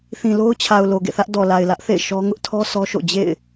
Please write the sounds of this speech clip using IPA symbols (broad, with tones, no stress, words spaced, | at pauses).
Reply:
θĩ˨lo˦ʊ̯t͡ɕʰa˨ʊ̯ lo˨ɡḛ˦˨θä˦ʔ dɔ˨la˨ɪ̯lä˦ʔθḛ˦˨ɪ̯ ʃɔ˦ ŋʊ˦ʔtʰɔ˦ sɔ˦ʃo̰˦˨ d͡ʑḛ˦˨ɪ̯